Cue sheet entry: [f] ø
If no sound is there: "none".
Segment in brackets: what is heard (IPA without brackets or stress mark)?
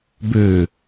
b